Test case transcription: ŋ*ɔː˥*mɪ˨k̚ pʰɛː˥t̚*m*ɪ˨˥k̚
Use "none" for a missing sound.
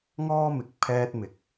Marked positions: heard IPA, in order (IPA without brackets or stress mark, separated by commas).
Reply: ɔː˥, m